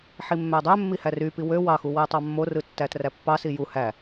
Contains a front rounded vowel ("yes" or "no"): yes